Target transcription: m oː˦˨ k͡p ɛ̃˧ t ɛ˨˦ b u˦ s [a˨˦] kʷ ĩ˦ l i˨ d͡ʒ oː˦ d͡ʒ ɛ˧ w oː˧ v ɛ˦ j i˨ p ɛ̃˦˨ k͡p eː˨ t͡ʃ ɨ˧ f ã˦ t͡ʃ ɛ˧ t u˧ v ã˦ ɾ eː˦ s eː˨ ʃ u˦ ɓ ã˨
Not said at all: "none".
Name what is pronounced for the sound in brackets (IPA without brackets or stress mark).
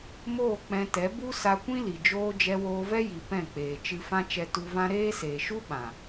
a˧